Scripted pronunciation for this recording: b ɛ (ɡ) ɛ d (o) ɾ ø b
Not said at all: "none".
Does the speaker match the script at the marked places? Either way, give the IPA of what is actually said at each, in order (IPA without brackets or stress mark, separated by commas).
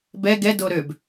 ɡ, o